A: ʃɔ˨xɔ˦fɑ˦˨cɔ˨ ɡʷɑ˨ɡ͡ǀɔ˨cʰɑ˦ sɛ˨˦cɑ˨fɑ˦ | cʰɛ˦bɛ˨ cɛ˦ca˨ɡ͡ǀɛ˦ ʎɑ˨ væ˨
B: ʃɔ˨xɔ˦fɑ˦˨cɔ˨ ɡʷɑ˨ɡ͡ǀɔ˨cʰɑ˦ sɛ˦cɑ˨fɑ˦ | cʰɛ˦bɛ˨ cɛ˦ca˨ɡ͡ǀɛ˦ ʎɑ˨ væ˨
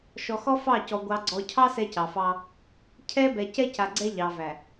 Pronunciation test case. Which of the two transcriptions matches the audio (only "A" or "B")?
B